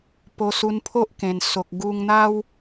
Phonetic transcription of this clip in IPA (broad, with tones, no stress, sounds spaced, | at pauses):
p o˧ s u˧ n pʰ o˦ ʔ k ẽ˨˩ n s o˨ k̚ ɡ u˧ ŋ n̪ a˦ w